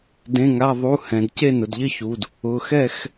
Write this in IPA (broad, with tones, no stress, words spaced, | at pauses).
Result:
dẽ˩˧˩ŋa˩˧˩ðˤu˩˧˩ hɛ̃˩d ce˥˨nʊ˩dʎɪ˥˨çu˩˧˩d | ʊ˩˧˩xɛ˥˨x